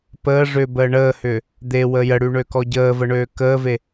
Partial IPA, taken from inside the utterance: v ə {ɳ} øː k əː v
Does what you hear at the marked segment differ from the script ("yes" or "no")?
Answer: no